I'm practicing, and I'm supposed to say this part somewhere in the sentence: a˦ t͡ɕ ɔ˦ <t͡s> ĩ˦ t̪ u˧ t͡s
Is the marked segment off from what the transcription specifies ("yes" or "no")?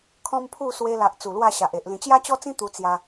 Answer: no